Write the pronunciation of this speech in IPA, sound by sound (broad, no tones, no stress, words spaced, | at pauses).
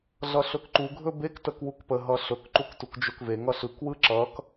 ɮʌɬɵkǃuɡʱɵ bek təkwukpəɦʌ ɬɵkǃuk tukd͡ʒɵkveŋʌ ɬɯkwɯ ǁʌk